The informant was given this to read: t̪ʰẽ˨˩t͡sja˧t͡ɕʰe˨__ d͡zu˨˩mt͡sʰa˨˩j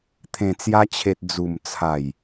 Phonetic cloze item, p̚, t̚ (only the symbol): t̚